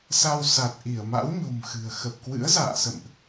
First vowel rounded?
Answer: no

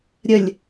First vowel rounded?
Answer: no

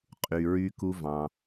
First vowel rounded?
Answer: yes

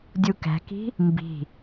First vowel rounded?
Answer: yes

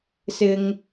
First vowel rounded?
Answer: no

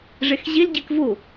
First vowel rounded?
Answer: no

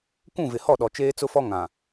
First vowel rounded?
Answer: yes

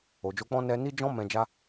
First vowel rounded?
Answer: yes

